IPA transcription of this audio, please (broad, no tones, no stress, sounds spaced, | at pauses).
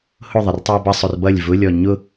h ʊ ðˤ ɐ r tˤ i ɐ̯ b ɐ sˤ ʊ r b ʌ lʲ v ʊ lʲ ɔ ɲ ʊ